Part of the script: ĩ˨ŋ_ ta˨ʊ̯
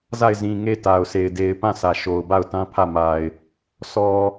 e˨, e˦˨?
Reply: e˦˨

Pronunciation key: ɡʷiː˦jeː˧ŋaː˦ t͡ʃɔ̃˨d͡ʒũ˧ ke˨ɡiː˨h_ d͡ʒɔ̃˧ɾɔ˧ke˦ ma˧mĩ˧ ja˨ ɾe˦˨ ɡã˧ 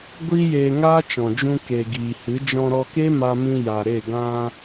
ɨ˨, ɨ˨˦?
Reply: ɨ˨˦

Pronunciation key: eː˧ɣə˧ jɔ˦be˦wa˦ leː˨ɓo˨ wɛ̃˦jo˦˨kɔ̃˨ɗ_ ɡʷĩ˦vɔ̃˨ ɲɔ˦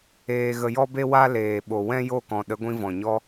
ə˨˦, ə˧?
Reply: ə˨˦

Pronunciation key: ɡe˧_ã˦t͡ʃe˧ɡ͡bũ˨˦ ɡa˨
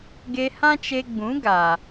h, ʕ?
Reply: h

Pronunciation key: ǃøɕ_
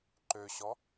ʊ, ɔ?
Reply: ɔ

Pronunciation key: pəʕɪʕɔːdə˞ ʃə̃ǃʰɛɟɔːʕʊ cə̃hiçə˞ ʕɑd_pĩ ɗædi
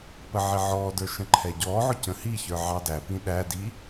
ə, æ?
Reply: æ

